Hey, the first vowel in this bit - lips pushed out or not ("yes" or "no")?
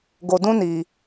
yes